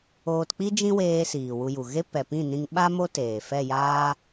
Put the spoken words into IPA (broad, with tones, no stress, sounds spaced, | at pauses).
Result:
oː˧ t k͡p i˦ d͡ʒ ĩ˦ w eː˧ s iː˨ w u˧ j u˨ ɣ e˦ p ɛ˨ p ĩ˦˨ n ĩ˧ ŋ ɓ a˦ m o˦ t eː˨ f ɛ˦˨ j aː˦